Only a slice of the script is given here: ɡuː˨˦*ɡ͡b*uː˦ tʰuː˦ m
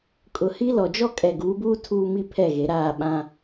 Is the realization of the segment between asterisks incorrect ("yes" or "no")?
yes